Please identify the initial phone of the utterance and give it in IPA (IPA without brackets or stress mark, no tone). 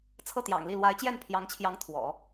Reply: t͡sʰ